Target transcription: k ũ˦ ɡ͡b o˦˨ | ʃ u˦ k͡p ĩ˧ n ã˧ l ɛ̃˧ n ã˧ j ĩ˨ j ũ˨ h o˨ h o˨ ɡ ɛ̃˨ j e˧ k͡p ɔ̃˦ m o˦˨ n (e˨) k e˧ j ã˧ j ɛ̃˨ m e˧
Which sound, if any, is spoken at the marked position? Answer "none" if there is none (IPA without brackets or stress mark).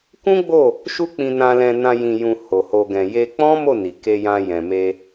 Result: i˨